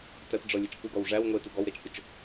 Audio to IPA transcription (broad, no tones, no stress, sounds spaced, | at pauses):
t æ t ɖ͡ʐ ɔ lʲ ə t͡ʃ k u ɡ ɔ w ʐ æ w ŋʷ e t u ɡ ɔ w ɾ e t͡ʃ k ʊ t͡ʃ